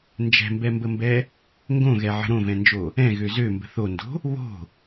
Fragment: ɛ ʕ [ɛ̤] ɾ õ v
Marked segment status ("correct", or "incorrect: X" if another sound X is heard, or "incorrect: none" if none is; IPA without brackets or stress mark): incorrect: ə̤